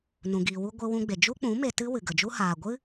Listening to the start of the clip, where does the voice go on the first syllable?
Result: low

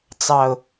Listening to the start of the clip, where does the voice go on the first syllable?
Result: low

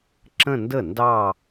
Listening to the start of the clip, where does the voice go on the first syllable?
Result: falling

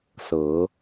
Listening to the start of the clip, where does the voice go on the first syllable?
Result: rising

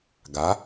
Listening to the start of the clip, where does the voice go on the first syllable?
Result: rising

